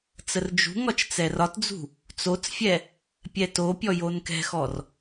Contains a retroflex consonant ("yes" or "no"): no